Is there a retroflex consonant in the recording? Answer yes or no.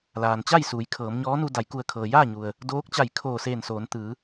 no